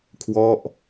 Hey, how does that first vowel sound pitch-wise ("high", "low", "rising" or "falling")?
falling